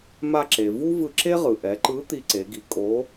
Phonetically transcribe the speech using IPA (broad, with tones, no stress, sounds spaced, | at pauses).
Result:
m a˧ ǁ e˩ v u˥ v ɯ˧ ǁ e˥ ʁ ɯ˩ ʔ ɛ˩˧ ǃ ɯ˧˥ t̪ i˧ ǀ e˩˧ ɡ i˩˧ kʼ o˧˥